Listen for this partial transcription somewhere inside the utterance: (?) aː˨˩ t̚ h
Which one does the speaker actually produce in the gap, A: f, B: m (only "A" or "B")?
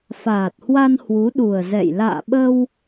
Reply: A